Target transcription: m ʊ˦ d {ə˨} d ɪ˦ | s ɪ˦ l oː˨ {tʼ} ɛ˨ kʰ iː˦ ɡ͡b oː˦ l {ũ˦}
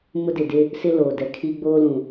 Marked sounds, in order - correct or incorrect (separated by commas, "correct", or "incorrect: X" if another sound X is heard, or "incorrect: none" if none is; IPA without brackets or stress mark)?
incorrect: ɪ˨, incorrect: d, incorrect: ũ˨